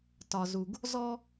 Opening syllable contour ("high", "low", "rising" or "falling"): low